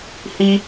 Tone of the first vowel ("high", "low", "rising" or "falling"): high